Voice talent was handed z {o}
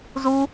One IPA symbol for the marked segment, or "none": u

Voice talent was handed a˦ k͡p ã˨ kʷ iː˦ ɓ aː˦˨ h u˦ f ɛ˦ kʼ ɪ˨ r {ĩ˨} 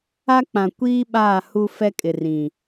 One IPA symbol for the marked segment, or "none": ĩ˨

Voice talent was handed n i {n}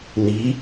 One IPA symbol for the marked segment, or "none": none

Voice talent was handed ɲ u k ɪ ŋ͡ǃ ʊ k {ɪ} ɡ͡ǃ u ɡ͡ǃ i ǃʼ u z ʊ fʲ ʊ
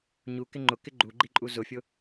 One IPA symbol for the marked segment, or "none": ɪ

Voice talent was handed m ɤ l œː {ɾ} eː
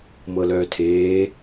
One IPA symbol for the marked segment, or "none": tʰ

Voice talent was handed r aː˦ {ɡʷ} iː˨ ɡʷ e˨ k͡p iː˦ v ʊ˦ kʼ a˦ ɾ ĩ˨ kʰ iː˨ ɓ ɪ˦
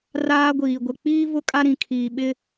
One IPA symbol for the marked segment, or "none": ɡʷ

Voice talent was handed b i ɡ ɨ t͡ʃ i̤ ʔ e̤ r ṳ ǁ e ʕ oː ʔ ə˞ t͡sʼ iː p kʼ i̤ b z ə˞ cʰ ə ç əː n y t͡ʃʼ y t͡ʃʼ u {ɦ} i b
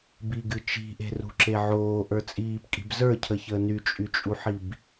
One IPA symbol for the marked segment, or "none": ħ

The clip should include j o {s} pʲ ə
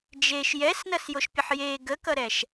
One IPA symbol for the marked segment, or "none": ʃ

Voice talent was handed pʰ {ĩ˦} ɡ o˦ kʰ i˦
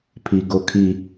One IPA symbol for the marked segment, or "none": i˦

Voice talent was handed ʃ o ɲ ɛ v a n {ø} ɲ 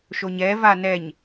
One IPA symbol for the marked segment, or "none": ɛ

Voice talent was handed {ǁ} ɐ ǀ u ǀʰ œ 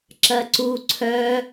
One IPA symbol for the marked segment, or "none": ǁ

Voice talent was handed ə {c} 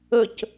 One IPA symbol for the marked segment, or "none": c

